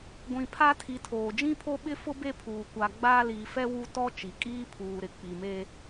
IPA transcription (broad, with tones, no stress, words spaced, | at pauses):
ɡʷĩ˨pʰa˦tʰi˨tʰoː˨ d͡ʒĩ˦pʰo˦ɓɪ˦fʊ˦ be˦pʰuː˨ kʷa˨ ɡ͡baː˦liː˨fɛ˦ wu˦ tɔ˦ t͡ʃi˨kʼiː˦pʰuː˨ɾɪ˨ k͡pi˨meː˦